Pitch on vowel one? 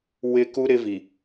high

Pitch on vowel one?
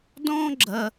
high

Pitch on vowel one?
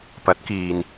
rising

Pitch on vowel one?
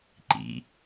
low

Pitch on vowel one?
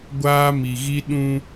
high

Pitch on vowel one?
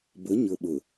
rising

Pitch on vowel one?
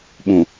low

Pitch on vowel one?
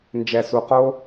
low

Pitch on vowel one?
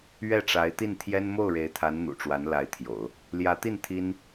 falling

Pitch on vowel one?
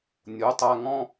rising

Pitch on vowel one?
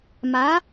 rising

